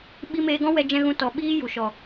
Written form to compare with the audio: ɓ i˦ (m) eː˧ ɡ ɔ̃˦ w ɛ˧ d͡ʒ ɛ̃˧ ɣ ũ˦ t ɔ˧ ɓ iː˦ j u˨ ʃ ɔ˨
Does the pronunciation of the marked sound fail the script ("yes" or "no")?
no